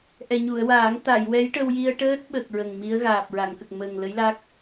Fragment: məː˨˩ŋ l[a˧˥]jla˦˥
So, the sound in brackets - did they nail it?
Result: no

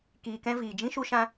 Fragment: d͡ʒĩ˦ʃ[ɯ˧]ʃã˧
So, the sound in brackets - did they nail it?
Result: no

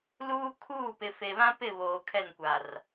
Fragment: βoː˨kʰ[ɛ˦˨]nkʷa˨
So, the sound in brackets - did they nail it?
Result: yes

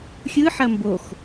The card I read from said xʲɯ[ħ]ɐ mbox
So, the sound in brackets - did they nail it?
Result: yes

